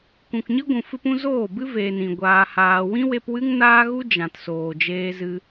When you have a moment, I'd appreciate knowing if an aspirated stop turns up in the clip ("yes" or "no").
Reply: no